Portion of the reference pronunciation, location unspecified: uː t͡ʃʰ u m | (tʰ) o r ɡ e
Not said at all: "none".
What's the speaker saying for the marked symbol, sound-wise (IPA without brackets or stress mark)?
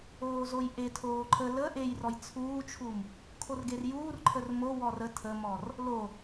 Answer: kʰ